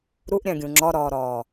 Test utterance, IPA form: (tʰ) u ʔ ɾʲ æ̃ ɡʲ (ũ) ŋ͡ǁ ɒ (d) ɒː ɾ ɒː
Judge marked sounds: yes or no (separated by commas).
no, yes, no